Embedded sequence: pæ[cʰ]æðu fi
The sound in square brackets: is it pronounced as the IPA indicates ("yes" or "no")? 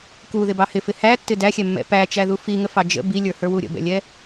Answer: no